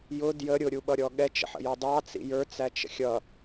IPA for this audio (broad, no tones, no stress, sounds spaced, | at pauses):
j ʊ d j ə ɾʲ ʊ ɾʲ u ɓ ʌ ɾʲ ɔ ɠ ɛ t͡ʃ ə̰ ħ ə̰ j ɔ dˤ ɑ t͡s ḭ j ə˞ t͡s æ t͡ʃ ə̰ xʲ ʌ